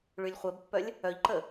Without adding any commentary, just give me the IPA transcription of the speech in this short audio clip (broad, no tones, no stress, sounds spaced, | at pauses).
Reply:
ɭ y lʲ χʷ ɛ b pː œ lʲ | œ ʎ ǃ ə